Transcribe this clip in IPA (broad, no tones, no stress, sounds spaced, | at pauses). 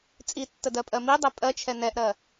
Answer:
t͡sʼ i tː ə d ɜ pʼ ɜ m i dˤ ɛ pʼ ɜ t͡ʃʰ ɛ n ɛ ʔ ɾ ɜ